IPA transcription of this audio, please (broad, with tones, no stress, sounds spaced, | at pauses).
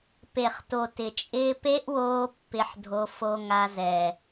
p e˨ χ t o˨ t ɪ˨ t͡ʃʼ ɪː˧ p e˦ ʔ w oː˧ pː ɪ˧ ħ dʱ o˧ f o˧ ŋ a˧ z ɛ˨